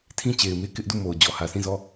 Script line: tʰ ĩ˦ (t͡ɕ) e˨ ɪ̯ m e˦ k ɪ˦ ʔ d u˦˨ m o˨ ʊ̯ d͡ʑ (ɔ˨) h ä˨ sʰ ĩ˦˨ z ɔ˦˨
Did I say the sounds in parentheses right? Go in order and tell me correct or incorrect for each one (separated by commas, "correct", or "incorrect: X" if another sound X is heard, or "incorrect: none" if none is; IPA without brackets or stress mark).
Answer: correct, correct